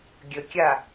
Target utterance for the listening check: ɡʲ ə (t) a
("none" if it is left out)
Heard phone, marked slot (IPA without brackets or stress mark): kʲ